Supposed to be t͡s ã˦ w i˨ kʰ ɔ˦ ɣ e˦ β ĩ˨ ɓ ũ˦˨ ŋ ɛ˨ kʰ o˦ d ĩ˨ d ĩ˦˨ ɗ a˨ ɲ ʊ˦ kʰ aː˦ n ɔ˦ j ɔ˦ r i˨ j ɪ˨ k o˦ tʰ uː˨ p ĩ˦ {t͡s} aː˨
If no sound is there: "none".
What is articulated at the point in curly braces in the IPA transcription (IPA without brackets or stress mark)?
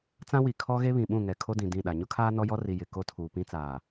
t͡s